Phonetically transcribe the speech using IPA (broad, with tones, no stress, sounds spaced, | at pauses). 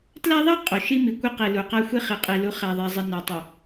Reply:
t l æ˦ ðˤ i˦ qʼ o˨ ʃ i˦ m i˨ kʷ i˦ q i˨ l u˨ q æ˦ xʷ e˦ χ i˨ qʼ i˨ l u˨˦ χ æ˨ ðˤ e˨ zˤ i˨ n æ˨ tˤ u˨